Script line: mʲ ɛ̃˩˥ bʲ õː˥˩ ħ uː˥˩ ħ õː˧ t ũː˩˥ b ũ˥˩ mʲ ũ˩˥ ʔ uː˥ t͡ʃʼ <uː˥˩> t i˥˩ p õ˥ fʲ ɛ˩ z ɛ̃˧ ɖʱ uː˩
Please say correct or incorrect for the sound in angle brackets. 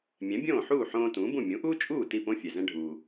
correct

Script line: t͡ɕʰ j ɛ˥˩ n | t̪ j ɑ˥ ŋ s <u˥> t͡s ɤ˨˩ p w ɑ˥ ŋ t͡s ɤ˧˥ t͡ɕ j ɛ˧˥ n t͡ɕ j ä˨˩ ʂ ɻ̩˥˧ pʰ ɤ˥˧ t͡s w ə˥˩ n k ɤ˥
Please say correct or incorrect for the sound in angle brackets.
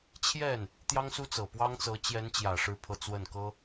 correct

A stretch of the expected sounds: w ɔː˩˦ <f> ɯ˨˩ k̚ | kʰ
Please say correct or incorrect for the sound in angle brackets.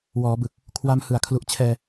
incorrect: b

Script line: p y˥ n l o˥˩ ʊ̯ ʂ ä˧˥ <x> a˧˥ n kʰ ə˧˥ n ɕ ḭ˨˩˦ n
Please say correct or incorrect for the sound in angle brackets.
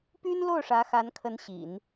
correct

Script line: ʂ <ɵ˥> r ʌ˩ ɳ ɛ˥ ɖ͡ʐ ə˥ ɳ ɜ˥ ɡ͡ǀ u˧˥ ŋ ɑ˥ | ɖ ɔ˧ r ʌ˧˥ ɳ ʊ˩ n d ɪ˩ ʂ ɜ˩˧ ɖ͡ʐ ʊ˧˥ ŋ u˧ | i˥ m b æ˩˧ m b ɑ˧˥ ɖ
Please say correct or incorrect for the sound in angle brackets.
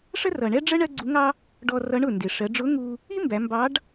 incorrect: ə˥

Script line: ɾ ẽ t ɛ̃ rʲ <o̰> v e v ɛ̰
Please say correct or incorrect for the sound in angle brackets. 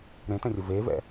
incorrect: o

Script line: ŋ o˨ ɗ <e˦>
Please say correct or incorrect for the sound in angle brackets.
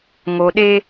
correct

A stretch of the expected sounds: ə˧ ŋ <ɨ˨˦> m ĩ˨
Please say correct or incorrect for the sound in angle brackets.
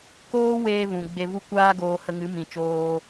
correct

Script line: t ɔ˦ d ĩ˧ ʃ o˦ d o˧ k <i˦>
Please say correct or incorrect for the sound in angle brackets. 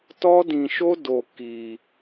incorrect: i˧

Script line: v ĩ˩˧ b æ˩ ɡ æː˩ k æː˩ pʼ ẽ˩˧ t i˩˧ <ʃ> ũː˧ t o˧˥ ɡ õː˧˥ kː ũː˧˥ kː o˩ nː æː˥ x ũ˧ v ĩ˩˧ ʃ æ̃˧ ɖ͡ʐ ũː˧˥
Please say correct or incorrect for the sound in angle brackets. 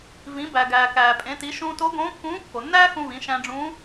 correct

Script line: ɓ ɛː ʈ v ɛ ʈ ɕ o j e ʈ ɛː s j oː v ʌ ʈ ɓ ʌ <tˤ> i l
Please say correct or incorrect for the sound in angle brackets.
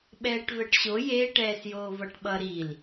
incorrect: ɾ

